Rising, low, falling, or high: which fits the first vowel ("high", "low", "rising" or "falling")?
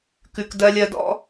low